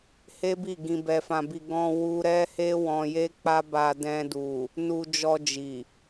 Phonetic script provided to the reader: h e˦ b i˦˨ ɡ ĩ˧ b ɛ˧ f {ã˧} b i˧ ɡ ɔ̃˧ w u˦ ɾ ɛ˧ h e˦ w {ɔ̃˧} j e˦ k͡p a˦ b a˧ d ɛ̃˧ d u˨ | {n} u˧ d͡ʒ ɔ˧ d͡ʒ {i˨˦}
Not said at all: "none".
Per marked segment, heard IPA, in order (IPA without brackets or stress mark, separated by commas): ã˧, ɔ̃˧, n, i˨